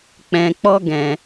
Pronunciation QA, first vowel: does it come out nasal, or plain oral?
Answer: nasal